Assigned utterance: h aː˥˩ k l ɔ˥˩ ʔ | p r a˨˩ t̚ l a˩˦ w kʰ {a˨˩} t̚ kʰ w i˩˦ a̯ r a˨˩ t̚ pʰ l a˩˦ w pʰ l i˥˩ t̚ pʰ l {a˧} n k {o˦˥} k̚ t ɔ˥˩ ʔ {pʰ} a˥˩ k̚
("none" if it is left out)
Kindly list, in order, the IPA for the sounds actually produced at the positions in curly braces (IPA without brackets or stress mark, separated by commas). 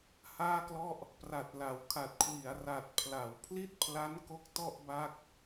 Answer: a˨˩, a˦˥, o˦˥, b